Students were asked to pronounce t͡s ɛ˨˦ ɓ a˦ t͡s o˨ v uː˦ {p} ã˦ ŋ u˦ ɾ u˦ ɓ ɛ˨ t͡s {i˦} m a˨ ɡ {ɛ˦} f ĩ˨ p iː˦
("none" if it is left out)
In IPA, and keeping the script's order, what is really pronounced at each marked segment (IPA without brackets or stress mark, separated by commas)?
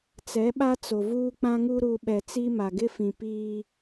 k͡p, i˦, ɪ˦